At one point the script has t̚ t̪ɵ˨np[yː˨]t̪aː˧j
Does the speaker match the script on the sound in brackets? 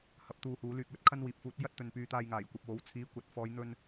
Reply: no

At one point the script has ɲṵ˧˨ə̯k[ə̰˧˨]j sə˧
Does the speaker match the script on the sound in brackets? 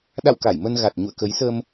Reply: no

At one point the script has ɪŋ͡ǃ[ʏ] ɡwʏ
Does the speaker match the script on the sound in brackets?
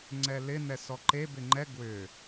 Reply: no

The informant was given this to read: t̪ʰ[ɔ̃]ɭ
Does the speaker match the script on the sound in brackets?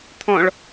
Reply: yes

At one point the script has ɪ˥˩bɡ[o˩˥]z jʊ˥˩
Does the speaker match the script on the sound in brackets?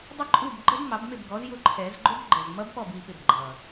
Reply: no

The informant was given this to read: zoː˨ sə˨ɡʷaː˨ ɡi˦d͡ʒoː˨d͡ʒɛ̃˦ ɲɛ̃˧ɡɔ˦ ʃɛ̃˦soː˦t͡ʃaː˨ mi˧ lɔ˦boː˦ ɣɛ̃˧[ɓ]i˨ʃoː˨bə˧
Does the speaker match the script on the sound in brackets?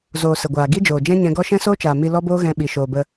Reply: yes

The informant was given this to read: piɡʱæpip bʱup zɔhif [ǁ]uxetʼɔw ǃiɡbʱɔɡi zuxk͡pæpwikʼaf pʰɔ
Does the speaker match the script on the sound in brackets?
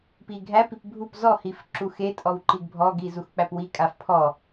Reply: yes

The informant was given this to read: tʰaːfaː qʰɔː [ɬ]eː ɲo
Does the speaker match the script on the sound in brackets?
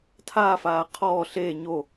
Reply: yes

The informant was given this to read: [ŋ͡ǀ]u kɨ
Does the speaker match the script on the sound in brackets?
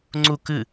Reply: yes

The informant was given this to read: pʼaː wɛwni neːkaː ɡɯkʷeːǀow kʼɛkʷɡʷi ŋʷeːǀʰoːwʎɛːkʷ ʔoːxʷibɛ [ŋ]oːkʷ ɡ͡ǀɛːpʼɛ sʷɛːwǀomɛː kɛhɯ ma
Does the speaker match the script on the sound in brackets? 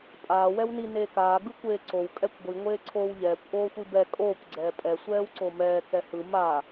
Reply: no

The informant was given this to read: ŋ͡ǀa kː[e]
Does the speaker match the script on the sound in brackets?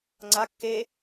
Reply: yes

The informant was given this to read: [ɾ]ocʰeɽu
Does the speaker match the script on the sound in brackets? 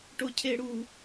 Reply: no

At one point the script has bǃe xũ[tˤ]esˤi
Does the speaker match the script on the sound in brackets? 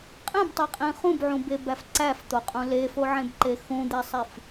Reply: no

